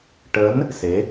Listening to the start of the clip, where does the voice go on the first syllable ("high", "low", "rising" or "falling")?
rising